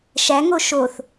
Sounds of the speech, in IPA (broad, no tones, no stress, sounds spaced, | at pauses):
ʃ æ ŋ o ʃ o θ